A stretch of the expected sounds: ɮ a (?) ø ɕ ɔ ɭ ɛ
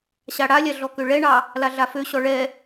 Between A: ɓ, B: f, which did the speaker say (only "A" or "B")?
B